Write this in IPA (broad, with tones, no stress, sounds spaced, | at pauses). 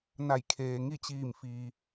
n a˧˩ j kʰ eː˩ ŋ i˥˨ t͡ɕ iː˧˩ m f iː˩